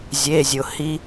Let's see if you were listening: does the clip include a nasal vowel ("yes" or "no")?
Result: no